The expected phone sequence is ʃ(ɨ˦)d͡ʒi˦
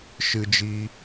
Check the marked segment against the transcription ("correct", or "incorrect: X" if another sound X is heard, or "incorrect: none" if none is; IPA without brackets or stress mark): correct